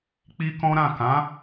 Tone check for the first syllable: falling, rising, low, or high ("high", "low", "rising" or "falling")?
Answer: high